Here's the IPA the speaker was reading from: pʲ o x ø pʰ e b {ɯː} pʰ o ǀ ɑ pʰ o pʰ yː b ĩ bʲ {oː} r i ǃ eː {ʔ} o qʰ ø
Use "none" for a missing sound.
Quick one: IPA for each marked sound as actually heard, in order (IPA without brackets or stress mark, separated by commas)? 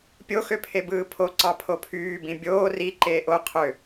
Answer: ɯː, oː, ʔ